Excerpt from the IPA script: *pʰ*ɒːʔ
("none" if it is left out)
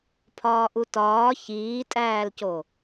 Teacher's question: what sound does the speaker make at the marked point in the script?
pʰ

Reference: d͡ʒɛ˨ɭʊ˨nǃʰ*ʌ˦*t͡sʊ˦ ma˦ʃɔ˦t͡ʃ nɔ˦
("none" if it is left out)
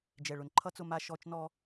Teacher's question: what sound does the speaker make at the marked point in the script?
ʌ˦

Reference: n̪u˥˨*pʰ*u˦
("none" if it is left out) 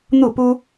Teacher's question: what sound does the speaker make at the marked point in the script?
p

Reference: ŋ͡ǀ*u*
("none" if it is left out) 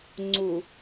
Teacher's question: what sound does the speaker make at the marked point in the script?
u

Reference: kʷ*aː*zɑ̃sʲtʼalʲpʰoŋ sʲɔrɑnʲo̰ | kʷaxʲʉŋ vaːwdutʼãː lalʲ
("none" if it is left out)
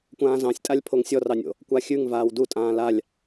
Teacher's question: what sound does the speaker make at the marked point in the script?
ãː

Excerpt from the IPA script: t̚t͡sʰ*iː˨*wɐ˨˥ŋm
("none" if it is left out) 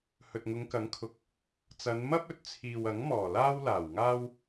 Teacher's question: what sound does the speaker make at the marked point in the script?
iː˨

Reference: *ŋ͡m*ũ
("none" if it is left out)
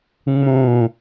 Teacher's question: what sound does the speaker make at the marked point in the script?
ŋ͡m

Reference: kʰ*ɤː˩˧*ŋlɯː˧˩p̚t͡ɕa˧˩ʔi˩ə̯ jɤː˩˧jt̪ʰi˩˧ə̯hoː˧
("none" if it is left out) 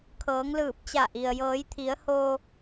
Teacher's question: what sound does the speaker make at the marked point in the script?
ɤː˩˧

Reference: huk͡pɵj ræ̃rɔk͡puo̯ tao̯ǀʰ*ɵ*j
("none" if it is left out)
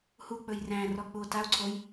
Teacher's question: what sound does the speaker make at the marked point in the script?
o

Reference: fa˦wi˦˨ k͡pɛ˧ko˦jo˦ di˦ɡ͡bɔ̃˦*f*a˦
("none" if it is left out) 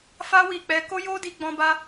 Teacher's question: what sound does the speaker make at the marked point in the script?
b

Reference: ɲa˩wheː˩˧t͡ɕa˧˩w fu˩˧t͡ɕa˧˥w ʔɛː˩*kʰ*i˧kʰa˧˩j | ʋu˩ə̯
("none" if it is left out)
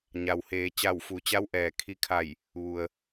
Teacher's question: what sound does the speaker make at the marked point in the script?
kʰ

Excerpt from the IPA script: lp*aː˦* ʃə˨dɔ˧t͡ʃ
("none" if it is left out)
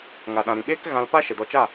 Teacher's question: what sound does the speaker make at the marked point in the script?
a˦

